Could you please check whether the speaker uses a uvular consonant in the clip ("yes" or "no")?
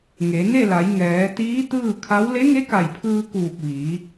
no